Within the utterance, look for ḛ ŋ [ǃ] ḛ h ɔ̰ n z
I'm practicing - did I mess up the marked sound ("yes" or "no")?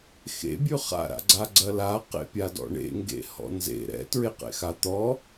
yes